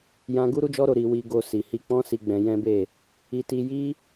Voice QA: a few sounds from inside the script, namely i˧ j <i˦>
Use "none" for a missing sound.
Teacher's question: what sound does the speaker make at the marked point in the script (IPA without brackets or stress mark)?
i˦